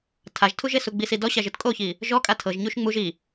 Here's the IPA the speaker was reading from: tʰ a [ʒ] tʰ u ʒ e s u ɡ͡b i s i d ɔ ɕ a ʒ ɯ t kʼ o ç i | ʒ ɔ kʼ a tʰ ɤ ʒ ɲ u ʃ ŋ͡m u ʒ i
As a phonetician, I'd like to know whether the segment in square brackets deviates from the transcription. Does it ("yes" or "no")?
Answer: no